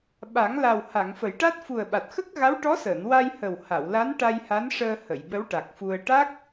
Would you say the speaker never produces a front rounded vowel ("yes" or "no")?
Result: yes